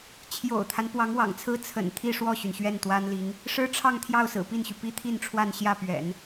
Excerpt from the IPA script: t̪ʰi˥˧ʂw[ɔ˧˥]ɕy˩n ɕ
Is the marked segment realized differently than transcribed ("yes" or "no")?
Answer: yes